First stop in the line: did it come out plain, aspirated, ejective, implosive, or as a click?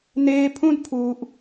aspirated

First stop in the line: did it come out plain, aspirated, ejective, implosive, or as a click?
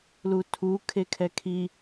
aspirated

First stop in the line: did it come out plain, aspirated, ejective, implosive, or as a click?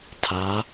aspirated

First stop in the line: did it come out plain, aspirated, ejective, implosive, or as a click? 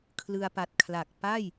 aspirated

